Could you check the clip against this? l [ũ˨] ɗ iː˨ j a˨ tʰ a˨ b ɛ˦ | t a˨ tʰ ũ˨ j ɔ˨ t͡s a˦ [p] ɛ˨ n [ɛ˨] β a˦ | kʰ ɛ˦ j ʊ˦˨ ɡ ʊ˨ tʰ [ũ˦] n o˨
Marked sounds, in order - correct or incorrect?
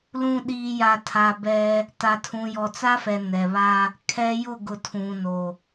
correct, incorrect, correct, incorrect

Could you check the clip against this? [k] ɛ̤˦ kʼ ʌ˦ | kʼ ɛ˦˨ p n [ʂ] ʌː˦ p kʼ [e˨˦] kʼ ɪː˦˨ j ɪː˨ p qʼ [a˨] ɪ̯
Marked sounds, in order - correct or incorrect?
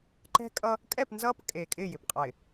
incorrect, incorrect, incorrect, correct

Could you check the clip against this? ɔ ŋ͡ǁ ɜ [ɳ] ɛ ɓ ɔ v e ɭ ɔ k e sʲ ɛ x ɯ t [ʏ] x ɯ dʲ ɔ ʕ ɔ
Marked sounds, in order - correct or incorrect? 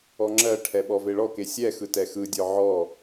incorrect, incorrect

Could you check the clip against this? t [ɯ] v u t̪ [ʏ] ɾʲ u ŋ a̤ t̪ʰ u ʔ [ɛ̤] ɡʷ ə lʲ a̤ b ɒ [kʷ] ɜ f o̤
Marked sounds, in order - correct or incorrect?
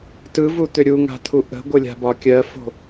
correct, correct, incorrect, incorrect

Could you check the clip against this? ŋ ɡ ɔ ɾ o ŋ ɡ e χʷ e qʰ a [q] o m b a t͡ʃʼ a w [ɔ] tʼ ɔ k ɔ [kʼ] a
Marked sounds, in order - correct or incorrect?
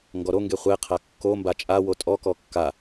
incorrect, incorrect, incorrect

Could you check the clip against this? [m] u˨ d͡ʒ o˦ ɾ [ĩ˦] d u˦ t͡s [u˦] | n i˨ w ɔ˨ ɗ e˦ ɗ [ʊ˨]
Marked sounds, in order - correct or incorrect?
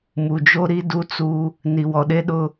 correct, incorrect, correct, incorrect

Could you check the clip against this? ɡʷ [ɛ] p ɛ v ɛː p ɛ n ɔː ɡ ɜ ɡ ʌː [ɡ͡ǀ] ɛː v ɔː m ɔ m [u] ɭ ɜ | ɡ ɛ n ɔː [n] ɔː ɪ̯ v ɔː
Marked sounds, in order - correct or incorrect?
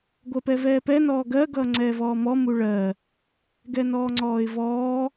incorrect, incorrect, correct, incorrect

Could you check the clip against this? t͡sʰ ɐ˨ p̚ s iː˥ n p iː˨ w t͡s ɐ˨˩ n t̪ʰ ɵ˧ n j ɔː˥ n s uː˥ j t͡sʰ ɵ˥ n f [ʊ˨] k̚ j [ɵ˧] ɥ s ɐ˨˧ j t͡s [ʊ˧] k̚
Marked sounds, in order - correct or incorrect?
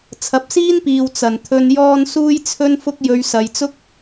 incorrect, correct, incorrect

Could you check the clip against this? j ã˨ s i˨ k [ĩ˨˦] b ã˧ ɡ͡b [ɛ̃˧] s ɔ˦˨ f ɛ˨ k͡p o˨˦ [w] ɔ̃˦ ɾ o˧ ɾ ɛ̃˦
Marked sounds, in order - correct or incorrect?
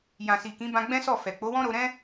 correct, incorrect, correct

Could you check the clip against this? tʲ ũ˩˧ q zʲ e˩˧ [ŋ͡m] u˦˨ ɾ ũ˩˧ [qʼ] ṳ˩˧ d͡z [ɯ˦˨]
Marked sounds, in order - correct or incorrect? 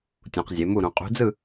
incorrect, correct, correct

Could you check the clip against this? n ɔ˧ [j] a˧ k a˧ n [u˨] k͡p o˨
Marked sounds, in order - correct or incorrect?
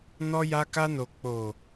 correct, incorrect

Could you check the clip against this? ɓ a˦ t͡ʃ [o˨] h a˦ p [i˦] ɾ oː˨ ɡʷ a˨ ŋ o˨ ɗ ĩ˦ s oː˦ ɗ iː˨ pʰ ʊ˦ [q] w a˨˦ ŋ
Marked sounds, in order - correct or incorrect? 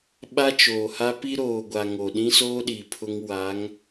incorrect, correct, incorrect

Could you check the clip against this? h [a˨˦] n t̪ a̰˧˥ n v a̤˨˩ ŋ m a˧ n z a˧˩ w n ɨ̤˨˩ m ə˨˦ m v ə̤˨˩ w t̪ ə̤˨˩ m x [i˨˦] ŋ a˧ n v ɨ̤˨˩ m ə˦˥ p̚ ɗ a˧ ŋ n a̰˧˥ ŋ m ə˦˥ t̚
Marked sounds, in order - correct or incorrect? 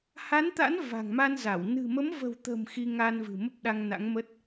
correct, incorrect

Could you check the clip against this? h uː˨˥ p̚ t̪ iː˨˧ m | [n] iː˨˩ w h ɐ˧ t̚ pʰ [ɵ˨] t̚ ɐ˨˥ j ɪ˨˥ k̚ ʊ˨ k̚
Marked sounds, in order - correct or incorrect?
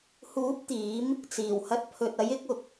incorrect, correct

